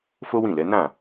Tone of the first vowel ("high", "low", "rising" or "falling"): high